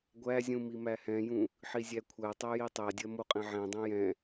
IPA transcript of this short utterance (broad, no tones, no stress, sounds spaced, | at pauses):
ɡʷ æ zʲ ũ m i m æ h ɛ̃ j ũ | ħ i zʲ æ kʷʰ æ tˤ æ j i tˤ æ dʲ ɜ m o qʼ ɛ̃ ʕ ɛ̃ dˤ ɛ̃ j ɛ̃